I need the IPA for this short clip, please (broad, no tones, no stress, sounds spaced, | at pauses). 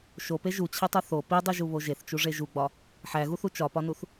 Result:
ʃ o p e ʒ u t͡ɕʰ i tˤ u θ o p i dˤ i ʒ u β o ʒ e θ t͡ʃ u ʐ e ʒ u ɡ͡b ɒ | ħ æ ɣ u θ u t͡ʃ ɒ p ɒ n u θ